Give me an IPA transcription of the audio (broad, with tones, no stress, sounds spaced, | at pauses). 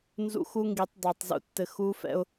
n z ṵ˦ x u˦ ŋ ɡ i˨˦ tˤ dˤ o˨ tˤ z ṵ˦ tː ɘ˨ x u˦ f ɛ̰˦ ʊ̯